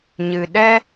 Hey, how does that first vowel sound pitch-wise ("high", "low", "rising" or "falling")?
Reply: low